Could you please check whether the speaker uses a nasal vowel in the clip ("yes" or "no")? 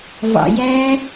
no